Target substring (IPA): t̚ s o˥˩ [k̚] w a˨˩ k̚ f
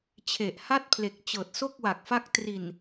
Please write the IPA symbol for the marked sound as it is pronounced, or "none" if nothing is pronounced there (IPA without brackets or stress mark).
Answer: k̚